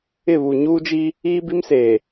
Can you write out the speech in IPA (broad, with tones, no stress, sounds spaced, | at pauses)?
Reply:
ɪ˦˨ β u˨ ɲ uː˦ d͡ʒ i˦ | iː˦ b i˦ m s eː˨